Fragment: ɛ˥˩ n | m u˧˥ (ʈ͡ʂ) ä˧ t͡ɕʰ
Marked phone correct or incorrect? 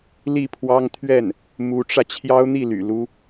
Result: correct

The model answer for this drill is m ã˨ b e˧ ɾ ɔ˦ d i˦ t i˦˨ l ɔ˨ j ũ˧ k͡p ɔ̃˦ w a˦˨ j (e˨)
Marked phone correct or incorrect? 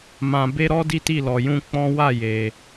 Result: correct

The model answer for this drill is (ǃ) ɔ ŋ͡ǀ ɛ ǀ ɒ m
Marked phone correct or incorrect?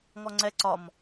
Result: incorrect: ŋ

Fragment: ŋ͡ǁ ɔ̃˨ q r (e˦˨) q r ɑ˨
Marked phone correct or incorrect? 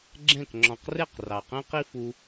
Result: correct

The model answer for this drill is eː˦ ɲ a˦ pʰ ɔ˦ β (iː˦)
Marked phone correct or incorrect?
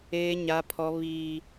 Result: correct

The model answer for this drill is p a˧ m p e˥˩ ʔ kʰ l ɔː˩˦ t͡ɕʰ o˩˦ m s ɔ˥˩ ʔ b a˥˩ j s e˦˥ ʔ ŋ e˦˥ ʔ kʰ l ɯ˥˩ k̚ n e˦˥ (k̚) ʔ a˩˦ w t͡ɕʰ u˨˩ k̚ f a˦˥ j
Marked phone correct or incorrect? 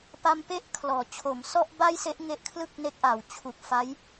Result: correct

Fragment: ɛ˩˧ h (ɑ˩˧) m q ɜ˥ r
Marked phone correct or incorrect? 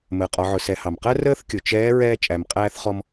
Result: incorrect: ɑ˩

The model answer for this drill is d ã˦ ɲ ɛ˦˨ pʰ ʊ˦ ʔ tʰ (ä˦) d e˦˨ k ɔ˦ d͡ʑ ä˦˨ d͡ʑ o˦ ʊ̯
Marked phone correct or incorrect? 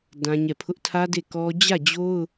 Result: correct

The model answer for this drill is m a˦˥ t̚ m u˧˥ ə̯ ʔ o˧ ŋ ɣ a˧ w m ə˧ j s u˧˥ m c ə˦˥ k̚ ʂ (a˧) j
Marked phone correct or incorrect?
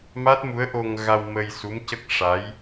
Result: incorrect: a˧˥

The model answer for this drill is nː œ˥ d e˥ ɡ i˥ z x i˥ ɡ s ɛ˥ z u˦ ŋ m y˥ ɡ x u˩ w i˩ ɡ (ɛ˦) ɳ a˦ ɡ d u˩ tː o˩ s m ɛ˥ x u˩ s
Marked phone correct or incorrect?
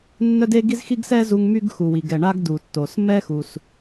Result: incorrect: ɛ˩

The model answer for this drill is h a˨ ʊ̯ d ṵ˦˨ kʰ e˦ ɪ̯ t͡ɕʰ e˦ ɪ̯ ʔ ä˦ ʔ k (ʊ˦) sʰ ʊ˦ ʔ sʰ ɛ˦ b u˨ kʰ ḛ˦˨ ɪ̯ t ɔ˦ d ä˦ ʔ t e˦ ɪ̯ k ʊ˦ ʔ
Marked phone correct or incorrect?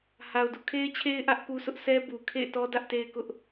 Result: incorrect: u˦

